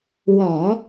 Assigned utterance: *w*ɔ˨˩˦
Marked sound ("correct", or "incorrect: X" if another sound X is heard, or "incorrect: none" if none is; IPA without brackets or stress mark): correct